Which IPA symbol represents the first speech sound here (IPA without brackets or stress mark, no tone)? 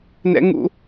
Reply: n